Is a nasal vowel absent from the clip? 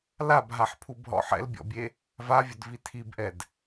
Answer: yes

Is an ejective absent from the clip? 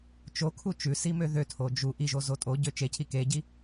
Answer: no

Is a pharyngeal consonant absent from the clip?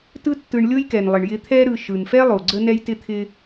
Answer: yes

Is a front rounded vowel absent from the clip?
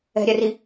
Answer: yes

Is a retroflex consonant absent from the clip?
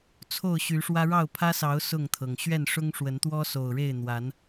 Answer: no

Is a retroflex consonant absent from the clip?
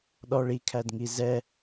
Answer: no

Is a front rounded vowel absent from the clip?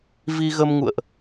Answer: yes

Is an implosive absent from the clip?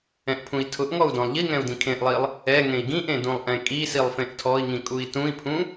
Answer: yes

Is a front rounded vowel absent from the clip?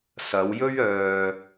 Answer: no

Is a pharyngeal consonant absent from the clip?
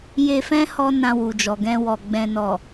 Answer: yes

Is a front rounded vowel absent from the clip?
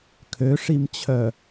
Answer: no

